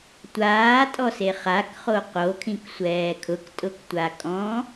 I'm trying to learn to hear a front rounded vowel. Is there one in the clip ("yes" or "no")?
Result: no